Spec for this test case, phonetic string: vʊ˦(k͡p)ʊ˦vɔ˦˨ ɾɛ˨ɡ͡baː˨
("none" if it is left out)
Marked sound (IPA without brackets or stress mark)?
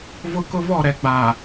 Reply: k